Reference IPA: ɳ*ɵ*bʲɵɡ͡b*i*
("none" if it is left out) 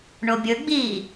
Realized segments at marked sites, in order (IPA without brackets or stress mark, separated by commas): o, iː